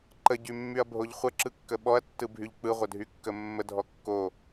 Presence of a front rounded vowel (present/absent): present